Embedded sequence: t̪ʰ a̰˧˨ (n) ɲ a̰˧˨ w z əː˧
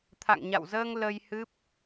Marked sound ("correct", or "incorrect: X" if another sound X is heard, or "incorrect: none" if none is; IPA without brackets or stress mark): incorrect: ŋ